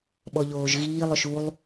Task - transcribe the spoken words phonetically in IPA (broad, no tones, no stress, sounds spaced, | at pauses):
ɓ ɔ ʎ oː ʒ ɣ iː lˠ ɵ ʃ u lˠ